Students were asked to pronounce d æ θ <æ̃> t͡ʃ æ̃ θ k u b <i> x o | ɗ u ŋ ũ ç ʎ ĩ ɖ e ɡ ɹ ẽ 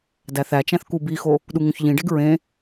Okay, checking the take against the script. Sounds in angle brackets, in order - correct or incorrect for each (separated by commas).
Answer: incorrect, correct